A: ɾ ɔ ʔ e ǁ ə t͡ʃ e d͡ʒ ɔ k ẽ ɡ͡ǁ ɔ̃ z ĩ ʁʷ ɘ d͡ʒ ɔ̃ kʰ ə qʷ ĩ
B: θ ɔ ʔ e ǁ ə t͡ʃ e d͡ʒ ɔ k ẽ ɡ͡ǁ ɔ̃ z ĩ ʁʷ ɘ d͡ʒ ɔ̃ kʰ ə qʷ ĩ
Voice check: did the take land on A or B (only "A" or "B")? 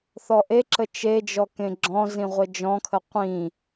B